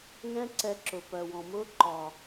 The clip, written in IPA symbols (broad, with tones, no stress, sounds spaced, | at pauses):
ŋ ɛ̃˦ ǀ ɛ˧ ǁ ʊ˨ p ɜ˨ w ɔ̃˨ m ʊː˦ ǃ ɒ˨